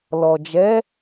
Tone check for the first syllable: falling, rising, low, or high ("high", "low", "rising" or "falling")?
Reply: low